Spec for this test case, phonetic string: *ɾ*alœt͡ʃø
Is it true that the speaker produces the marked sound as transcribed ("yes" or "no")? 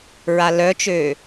no